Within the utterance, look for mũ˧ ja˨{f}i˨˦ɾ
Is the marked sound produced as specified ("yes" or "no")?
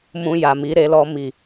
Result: no